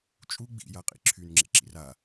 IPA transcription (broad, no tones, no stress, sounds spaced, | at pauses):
t͡ʃʼ u ɡ͡b ḭ j a qʼ ḭ ǁʰ y n ŋ͡ǁ ḛ ǁ ḭ r a